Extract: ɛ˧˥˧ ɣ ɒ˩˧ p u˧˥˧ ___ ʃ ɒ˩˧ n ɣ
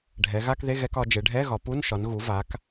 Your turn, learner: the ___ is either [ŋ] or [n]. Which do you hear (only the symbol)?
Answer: n